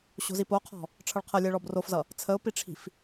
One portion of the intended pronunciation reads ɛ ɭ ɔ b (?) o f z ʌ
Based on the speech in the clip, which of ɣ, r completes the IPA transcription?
r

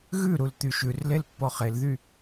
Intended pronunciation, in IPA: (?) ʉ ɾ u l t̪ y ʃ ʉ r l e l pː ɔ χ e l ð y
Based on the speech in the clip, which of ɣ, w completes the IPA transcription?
ɣ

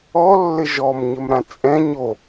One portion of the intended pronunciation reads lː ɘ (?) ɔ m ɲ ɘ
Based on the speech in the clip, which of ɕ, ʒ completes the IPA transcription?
ʒ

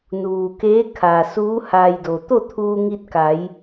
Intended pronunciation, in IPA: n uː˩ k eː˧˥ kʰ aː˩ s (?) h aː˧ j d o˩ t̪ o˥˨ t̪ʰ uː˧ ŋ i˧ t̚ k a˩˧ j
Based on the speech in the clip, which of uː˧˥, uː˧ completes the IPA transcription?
uː˧˥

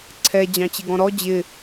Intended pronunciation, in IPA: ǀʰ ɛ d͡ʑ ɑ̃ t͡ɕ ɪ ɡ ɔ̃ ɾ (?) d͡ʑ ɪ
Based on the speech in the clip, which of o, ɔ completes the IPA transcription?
ɔ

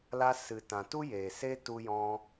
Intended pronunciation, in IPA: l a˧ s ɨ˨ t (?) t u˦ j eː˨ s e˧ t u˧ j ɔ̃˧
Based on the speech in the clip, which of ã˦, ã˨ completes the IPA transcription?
ã˨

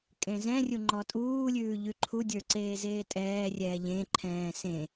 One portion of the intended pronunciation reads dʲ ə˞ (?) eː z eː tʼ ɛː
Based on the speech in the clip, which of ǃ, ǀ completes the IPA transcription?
ǀ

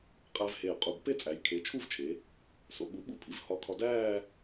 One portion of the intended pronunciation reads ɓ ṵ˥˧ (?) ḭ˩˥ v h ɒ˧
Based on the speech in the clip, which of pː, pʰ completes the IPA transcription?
pʰ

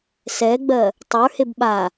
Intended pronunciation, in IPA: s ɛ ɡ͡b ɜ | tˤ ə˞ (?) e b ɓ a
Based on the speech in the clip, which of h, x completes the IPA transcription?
h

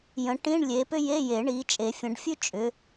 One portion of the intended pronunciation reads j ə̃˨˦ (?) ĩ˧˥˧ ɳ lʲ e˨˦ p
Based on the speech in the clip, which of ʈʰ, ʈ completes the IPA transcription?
ʈ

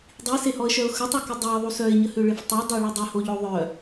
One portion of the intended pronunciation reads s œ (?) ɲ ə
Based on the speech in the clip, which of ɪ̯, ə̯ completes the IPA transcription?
ɪ̯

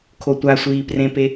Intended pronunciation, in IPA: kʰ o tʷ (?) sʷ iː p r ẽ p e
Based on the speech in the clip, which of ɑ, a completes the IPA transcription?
a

